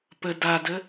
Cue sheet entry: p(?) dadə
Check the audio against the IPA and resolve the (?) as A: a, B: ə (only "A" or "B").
B